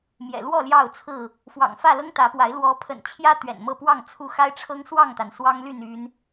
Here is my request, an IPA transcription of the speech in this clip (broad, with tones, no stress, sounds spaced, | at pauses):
m j ɛ̰˨˩ l w ɔ˥˨ l j ɑ˥˨ ʊ̯ t͡sʰ ɹ̩˥˨ | f w ɑ̰˨˩ ŋ f ä˥˨ l ɤ˦ ŋ t̪ ä˨˦ p w a˨˦ ɪ̯ l w ɔ˨˦ pʰ ə̰˨˩ n t͡ɕʰ j ä˦ t̪ ɥ ɛ̰˨˩ n m ɤ˥˨ p w ɑ˥˨ ŋ t͡sʰ u˥˨ x a˦ ɪ̯ ʈ͡ʂʰ ɤ˦ ŋ s w ɑ˥˨ ŋ t̪ a˩ n s w ɑ˦ ŋ l y˥˨ n y˦ n